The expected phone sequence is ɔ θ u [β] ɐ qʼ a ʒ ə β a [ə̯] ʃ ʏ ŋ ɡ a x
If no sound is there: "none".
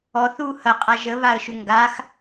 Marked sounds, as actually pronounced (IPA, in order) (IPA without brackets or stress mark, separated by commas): h, ə̯